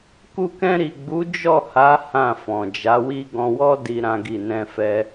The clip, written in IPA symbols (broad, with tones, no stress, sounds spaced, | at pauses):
k u˧ k ɛ̃˧ ɾ i˨ ɡ͡b u˨˦ d͡ʒ ɔ˦˨ h a˨˦ h ã˦˨ f ɔ̃˨ d͡ʒ a˨˦ w i˦ ɡ ɔ̃˧ w ɔ˦ d i˧ ɾ ã˦ ɡ i˦˨ n ɛ̃˧ f ɛ˧